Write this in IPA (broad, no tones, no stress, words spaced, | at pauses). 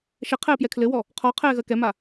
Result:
ʃɛ qʰɛːpjɛkʰlɘwɔ | qʰɔ qʰɛːɣɜkɛma